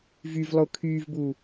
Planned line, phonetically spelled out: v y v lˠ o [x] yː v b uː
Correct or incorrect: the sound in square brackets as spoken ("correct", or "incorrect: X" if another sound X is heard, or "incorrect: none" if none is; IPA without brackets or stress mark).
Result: incorrect: kʰ